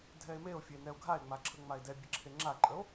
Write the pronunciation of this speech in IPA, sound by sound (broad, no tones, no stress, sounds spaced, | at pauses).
dʱ ɛ e̯ m e o̯ fʲ e n ɛ o̯ ɡʱ a e̯ ŋ͡m a ǁʰ ə ŋ͡m a e̯ d ɛ bʲ ə ǁʰ e ŋ͡ǁ a ǃʼ ə o̯